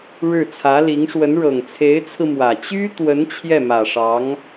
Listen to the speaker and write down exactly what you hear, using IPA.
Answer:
ɻ ɻ̩˥˩ t͡sʰ ä˧˥ l i˧˥ ŋ ʂ w ə˧˥ n ɻ ɤ˨˩ ŋ t͡sʰ e˧˥ ɪ̯ t͡sʰ ɹ̩˧ m w ä˨˩ t͡ɕ y˥ t̪ w ə˧˥ n t͡ɕʰ j ɛ˥˩ m ä˨˩ ʂ ɑ˧˥ ŋ

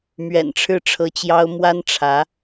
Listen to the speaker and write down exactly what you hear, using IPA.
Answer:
m ɥ ɛ̰˨˩ n ʈ͡ʂʰ ɻ̩˥˩ ʈ͡ʂʰ ɤ˧˥ t͡ɕ j ɑ˥ ʊ̯ m w a˥ n ʈ͡ʂʰ ä˧˥

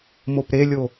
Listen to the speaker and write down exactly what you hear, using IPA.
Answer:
m o p ɾ e lʲ o

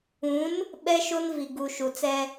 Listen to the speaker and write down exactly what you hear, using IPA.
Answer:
ũ˨˦ n | ɓ ɛ˦ ʃ o˦ n v i˨ ɡ u˨ ʃ u˨ t͡s ɛ˦

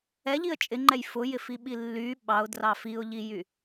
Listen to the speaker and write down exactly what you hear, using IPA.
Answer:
ɛ ʎ i ə̯ t͡ʃʼ ɪ ŋ͡ǃ ɛ j f ʊ j ɪ f i ɓ i lː y ɓ ɑ ʊ̯ d r ɑ f i ʊ̯ ʎ i j y

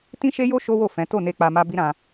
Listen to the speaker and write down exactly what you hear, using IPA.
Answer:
t ĩ˦ ʃ e˦ j o˦ ʃ o˦ w o˦˨ f ɛ̃˨˦ t o˦˨ n e˧ k͡p a˧ m a˦ b i˦ ɾ ã˧

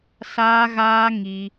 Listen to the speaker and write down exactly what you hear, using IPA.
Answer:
s aː˦ ɣ aː˦ ŋ i˧

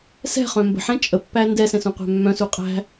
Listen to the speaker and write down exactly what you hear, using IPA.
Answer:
s ɛ̤ χ œ̃ m b ə̤ ħ ɛ̃ t͡ʃʼ ə pː æ n d ɛ s ɛ̃ s ũ qʷ æ̤ mː œ̃ s u qʼ æ̤

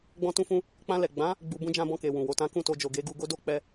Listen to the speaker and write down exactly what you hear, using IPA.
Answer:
ɡ͡b ɔ̃˧ t ũ˧ f ũ˧ | k͡p ã˧ l ɛ˨ ɡ͡b ã˨˦ | ɡ͡b u˧ b ũ˧ d͡ʒ ã˧ b ɔ̃˧ k e˨ w ũ˨ w o˧ t ã˦ k ũ˦˨ t o˧ d͡ʒ o˨ ɡ e˨˦ ɡ u˧ ɡ o˦ d o˦ k͡p ɛ˧

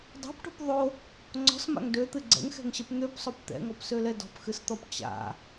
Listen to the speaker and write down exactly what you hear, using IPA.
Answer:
dˤ a̤ p ʈ o̤ p ðˤ o | ŋ͡ǀ ɔ̤ s m a̰ ŋ d ø t̪ ɨ ɡ͡ǀ ɛ̰ ŋ x ɛ̤ ŋ ɕ ɛ p n̪ ø p sˤ o p t̪ ɛ̰ ŋ ɔ p s ø l ɛ d ɔ̤ p x ɨ s t̪ ɔ p t͡ɕ a̰

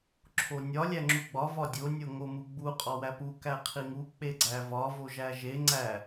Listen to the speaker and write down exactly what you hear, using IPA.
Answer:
ǁʰ o nʲ ɒ lʲ æ ŋ͡ǁ u ɡ͡b ɒ v ɒ dʲ o nʲ o ŋ o m u ɡ͡b u qʼ ɒ w æ p u k æ qʰ i ŋ u k͡p e ɡ͡ǀ æ v ɒ v o ʒ æ ʒ e ŋ͡ǀ æ

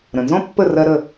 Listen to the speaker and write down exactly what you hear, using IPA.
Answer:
ɾ ə̃˩ n z ɔ̃˥ pː ə˥˩ r ɜ˧ ɾ ə˥˩

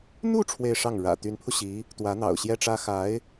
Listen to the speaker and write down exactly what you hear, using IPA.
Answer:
n̪ u˥˧ ʈ͡ʂʰ w e˥˧ ɪ̯ ʂ ɑ˥˩ ŋ ɻ ä̰˨˩ t̪ y˧˥ n pʰ u˧ ɕ i˧˥ | t̪ w ä˧˥ n̪ ɑ̰˨˩ ʊ̯ ɕ j ɛ˥ ʈ͡ʂ ä˥ x a˧˥ ɪ̯

